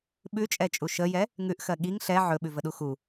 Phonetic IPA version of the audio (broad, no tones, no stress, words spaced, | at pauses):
ɓʉt͡ʃʼɛt͡ʃʼu ʃəjɛ | ŋʉʔxɜ ɠiŋ ɬɛ ʕɵɓʉvəɗu xu